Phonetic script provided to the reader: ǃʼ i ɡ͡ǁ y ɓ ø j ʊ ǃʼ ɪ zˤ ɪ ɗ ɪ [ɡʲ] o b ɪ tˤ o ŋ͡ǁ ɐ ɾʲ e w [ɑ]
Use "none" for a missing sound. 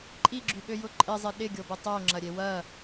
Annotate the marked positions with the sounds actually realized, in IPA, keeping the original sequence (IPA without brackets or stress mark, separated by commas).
ɡʲ, ɐ